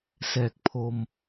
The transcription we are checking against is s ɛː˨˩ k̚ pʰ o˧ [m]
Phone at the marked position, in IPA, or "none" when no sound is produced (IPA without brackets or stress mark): m